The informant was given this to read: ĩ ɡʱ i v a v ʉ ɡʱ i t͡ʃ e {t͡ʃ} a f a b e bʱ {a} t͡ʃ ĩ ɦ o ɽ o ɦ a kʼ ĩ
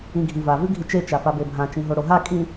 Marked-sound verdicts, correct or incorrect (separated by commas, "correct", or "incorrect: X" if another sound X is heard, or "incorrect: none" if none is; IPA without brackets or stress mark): correct, incorrect: ã